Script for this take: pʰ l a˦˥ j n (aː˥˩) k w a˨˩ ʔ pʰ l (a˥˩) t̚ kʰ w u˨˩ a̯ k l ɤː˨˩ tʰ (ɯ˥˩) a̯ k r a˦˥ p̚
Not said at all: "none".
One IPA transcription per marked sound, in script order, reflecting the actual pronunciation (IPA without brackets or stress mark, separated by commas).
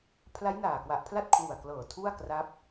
aː˨˩, a˥˩, u˥˩